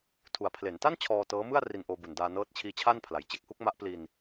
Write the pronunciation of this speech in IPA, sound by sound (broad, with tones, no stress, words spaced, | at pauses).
tʰu˨˩a̯pʰle˩˦nta˥˩n t͡ɕʰɔː˧tɤː˦˥mɯ˥˩a̯ ri˧nʔoː˧bu˨˩ndaː˧ nɤː˦˥t̚t͡ɕʰiː˦˥t͡ɕʰaː˥˩n pʰla˨˩jt͡ɕe˥˩k̚hu˦˥k̚ma˦˥ʔ pli˧n